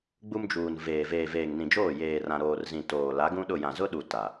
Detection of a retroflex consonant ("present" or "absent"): absent